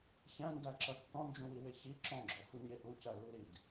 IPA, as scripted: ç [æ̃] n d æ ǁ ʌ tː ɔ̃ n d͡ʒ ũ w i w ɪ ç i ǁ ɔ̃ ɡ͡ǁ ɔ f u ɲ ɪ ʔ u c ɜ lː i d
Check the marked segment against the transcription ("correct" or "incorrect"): correct